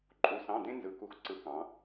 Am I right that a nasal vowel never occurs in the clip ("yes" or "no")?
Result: no